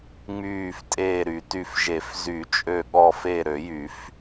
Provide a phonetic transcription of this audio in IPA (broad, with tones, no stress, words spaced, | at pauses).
ŋ͡myː˧˩ftʼeː˧˩ ɾy˨˩˦ty˧˩fʒe˨˩˦f zy˨˩˦t͡ʃʼø˧˩ ɠɔ˧˩fe˧˩ ɾø˨˩˦jy˨˩˦f